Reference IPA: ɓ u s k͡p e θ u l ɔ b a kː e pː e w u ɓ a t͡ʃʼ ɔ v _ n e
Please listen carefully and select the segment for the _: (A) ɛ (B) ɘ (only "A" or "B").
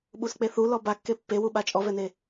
A